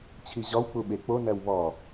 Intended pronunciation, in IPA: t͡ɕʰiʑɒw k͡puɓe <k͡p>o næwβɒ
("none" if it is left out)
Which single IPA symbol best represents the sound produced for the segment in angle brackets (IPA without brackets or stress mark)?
k͡p